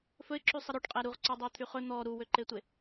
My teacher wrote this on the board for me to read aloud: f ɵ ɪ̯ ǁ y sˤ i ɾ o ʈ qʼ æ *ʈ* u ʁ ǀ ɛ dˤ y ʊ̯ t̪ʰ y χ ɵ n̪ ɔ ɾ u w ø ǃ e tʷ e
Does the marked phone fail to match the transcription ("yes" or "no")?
yes